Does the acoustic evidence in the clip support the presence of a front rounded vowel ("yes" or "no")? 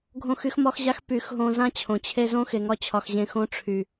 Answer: yes